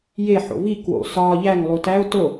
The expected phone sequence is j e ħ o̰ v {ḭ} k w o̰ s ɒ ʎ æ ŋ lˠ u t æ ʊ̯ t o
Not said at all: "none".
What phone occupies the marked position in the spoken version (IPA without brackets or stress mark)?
i